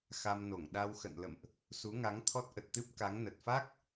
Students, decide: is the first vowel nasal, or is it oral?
oral